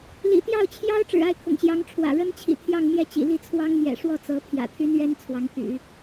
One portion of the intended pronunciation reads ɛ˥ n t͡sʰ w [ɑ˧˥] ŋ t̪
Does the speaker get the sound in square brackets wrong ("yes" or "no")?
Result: no